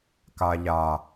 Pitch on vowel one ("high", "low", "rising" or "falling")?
low